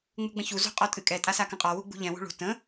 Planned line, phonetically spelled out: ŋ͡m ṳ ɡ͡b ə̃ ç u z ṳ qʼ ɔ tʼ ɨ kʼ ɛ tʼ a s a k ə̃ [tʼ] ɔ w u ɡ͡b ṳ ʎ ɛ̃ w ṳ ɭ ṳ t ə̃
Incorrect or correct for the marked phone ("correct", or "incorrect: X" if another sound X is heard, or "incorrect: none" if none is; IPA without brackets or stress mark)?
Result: incorrect: qʼ